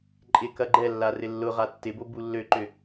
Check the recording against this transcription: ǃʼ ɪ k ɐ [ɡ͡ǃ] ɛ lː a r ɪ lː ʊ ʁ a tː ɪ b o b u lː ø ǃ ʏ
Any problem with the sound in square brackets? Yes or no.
no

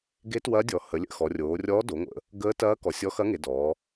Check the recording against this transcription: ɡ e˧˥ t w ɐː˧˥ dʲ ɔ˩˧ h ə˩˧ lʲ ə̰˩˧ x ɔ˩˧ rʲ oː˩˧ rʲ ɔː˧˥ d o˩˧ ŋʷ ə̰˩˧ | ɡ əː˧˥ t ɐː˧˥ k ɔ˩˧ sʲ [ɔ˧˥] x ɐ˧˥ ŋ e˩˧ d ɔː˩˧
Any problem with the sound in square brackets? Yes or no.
no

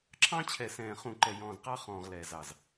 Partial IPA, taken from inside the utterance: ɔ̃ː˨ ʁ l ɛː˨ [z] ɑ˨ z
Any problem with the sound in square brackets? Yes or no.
no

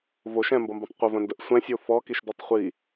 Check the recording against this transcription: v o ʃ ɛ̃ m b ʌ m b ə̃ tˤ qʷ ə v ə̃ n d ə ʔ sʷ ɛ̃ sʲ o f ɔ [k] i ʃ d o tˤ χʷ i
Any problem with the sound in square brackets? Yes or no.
no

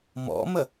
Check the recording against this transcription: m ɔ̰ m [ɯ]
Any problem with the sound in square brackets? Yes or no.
yes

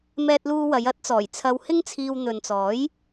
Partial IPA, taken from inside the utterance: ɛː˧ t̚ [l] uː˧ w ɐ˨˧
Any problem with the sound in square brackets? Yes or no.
no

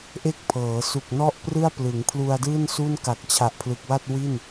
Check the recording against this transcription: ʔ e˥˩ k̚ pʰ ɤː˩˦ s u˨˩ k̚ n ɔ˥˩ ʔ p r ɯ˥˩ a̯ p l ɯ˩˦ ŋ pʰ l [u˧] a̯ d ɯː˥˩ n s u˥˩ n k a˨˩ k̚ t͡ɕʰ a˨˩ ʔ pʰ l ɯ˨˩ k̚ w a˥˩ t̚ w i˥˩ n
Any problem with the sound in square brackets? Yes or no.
no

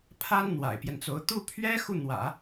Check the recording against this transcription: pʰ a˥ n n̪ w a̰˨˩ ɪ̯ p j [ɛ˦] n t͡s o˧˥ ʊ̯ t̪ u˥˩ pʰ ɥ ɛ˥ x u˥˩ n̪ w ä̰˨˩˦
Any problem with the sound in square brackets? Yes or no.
no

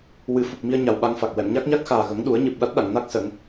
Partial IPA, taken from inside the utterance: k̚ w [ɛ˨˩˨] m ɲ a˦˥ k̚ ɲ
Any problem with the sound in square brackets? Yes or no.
no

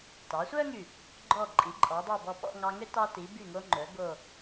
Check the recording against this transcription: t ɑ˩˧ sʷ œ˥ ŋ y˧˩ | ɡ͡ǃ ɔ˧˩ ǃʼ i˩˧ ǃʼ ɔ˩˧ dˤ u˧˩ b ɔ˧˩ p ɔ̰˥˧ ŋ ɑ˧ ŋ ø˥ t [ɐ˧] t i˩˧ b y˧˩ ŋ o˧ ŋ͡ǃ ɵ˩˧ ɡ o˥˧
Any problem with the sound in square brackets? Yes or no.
yes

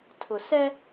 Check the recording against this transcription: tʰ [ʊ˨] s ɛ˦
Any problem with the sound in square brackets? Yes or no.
no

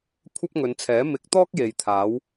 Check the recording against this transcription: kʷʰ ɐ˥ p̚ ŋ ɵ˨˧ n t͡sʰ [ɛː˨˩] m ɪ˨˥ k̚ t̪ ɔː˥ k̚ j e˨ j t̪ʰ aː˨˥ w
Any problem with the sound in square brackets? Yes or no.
yes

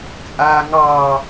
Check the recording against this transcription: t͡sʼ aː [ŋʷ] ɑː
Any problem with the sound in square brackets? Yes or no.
yes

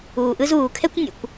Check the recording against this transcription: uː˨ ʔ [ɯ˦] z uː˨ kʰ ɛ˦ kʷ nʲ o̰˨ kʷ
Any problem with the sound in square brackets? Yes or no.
no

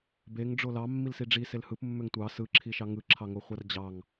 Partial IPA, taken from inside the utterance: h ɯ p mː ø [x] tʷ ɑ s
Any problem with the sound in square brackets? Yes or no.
yes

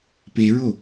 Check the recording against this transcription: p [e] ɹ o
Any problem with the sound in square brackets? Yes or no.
no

